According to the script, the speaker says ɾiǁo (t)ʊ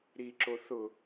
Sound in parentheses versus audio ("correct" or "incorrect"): incorrect